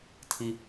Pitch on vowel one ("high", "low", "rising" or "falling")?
low